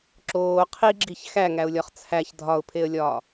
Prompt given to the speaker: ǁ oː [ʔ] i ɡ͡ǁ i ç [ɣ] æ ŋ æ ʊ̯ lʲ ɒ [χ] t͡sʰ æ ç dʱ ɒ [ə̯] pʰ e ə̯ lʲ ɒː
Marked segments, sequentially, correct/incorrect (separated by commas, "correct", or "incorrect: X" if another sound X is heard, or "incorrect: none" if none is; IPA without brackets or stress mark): incorrect: qʰ, incorrect: x, correct, incorrect: ʊ̯